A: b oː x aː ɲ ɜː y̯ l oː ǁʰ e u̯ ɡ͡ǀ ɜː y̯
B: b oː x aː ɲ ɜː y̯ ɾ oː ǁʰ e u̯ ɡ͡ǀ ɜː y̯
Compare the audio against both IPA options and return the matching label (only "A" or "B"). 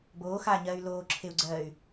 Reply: A